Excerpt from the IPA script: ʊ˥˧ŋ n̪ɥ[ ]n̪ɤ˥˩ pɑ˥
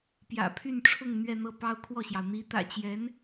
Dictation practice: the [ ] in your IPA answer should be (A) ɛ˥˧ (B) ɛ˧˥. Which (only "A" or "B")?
A